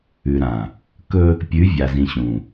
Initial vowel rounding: rounded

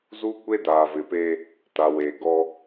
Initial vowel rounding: rounded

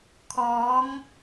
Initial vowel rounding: rounded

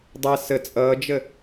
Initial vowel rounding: unrounded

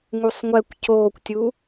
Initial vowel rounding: rounded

